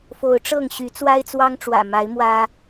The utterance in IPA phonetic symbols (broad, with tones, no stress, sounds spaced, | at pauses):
f o˨˦ ʊ̯ ʈ͡ʂ ɤ˥˨ ŋ ɕ y˨˦ t͡s w a˦ ɪ̯ t͡s w ɑ˦ ŋ ʈ͡ʂ w ä̰˨˩ m a˨˦ ɪ̯ m w ä˦